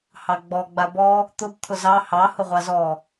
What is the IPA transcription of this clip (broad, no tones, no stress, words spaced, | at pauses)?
hɑɡ͡bɔ ɡ͡babɔ | t̪ʊb t̪ʰʊzɑ hɑ hʊʁʷɑzɔ